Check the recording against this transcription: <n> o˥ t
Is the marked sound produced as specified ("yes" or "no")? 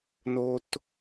yes